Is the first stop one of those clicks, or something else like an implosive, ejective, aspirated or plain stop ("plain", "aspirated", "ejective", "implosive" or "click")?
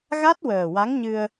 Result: plain